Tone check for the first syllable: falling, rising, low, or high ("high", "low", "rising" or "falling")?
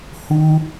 high